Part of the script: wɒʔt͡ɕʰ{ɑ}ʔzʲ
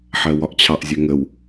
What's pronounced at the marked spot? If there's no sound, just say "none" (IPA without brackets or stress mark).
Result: ɑ